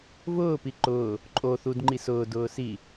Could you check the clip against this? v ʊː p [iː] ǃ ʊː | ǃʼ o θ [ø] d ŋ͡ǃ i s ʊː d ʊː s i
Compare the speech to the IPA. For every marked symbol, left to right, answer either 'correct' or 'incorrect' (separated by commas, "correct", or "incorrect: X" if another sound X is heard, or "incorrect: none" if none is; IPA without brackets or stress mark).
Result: incorrect: i, incorrect: u